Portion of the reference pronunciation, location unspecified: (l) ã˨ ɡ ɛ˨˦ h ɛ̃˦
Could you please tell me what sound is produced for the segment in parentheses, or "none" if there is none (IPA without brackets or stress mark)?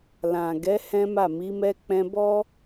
l